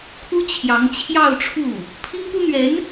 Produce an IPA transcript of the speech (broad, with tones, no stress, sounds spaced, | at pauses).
kʰ u˥ t͡ɕʰ j ɑ˧˥ ŋ t͡ɕʰ j ɑ˥˧ ʊ̯ ʈ͡ʂʰ u˥˩ | pʰ i˥ ŋ p u˥ n̪ ɥ ɛ˧˥ n